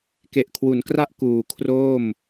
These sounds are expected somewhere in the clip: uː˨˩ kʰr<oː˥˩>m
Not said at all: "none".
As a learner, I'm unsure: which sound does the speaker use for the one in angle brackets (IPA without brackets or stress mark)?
oː˥˩